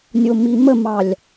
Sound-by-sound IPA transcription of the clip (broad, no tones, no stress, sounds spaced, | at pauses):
nʲ o m i m ə m ɑ lʲ